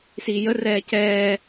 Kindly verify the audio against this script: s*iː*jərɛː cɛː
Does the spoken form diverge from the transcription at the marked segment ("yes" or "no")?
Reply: no